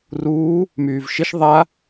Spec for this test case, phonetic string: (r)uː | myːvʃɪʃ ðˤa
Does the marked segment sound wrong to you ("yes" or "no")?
no